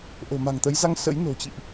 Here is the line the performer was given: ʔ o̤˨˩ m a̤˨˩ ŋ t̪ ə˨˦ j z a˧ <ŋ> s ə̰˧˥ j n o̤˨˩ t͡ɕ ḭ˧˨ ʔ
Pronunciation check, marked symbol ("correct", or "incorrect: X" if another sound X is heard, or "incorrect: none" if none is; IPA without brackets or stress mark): correct